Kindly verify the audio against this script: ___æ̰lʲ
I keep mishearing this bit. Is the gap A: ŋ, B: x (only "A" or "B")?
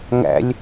A